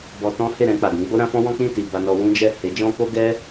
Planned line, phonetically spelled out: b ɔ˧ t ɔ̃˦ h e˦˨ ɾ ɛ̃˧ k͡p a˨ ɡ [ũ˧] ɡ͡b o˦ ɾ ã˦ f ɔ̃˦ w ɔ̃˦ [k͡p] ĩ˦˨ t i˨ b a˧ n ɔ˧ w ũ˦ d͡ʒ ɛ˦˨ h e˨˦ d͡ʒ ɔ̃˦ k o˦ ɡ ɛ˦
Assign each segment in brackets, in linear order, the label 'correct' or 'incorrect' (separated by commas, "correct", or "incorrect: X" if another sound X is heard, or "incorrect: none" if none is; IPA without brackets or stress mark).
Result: incorrect: ũ˨˦, correct